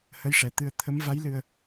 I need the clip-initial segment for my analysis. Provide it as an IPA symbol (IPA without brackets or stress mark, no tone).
h